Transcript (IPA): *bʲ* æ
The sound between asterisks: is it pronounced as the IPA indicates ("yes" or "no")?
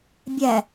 yes